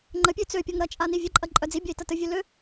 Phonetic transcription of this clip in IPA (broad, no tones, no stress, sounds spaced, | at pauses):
ŋ͡ǃ ə pʲ ø t͡s ø pʲ ɔ ŋ ɾ ɐ t͡ʃʼ a n i vʲ ə ǃʼ ɐ ǃʼ œ d͡z i bʲ ɐ i̯ t ɐ t ə vʲ ø l ø